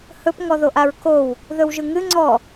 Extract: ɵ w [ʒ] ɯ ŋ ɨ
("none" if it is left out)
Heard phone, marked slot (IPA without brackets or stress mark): ʒ